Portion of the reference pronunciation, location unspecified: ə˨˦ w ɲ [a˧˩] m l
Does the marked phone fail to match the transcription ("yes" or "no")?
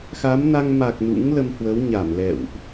no